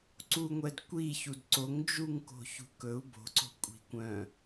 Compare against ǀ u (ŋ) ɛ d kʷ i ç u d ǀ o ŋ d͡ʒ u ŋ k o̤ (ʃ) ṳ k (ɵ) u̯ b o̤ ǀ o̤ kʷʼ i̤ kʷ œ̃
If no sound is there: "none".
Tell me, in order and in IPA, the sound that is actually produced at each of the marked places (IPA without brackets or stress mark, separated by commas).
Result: ŋʷ, ç, ɵ